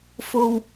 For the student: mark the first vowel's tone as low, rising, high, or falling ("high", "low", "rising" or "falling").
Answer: low